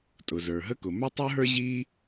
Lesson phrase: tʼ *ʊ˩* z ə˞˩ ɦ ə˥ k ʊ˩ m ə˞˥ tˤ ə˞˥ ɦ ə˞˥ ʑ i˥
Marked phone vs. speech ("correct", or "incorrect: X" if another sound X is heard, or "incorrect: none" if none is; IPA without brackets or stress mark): correct